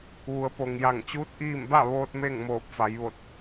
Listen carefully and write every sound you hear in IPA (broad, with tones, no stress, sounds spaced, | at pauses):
ʋ u˩˧ ə̯ p o˩ ŋ j a˧˩ ŋ t͡ɕ uː˧˥ t̚ ʔ iː˥˨ m b a˥˨ ʋ oː˧ t̚ m e˥˨ ŋ m oː˧˩ p̚ f a˩˧ j ʋ o˧˩ t̚